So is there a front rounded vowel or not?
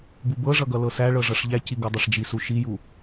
no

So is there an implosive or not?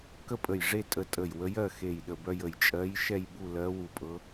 yes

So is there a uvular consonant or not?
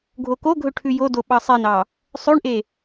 no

